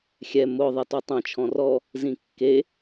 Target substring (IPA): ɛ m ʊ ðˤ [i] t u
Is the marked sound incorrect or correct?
incorrect: e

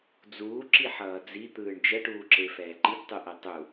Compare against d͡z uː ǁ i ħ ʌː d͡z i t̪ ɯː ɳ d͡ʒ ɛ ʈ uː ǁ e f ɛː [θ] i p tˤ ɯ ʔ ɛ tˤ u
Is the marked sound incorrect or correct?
incorrect: ǃ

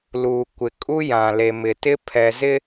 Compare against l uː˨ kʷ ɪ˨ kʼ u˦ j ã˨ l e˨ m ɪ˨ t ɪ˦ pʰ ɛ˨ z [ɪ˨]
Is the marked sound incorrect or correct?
incorrect: ɪ˦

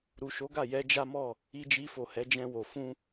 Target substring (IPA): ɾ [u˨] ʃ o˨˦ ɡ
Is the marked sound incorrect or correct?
correct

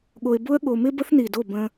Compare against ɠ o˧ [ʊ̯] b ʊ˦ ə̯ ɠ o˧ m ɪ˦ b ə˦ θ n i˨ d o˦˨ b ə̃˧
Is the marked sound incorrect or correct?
incorrect: ɪ̯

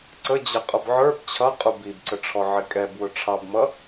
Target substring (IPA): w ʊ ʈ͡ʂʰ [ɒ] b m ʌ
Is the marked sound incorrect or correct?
incorrect: ɑ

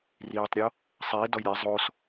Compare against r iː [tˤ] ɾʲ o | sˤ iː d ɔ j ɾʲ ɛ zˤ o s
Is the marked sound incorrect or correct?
correct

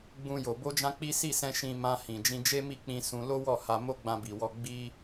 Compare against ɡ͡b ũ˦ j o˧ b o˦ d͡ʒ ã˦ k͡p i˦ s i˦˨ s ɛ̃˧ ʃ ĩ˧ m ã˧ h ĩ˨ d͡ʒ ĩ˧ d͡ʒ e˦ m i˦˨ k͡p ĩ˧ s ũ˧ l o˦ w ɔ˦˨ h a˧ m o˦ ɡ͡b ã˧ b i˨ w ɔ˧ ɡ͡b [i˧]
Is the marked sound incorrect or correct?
incorrect: i˦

